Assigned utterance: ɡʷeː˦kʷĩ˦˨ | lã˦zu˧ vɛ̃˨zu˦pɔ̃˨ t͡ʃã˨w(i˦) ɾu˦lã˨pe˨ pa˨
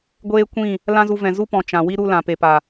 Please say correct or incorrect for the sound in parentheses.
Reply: correct